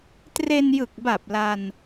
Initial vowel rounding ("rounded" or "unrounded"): unrounded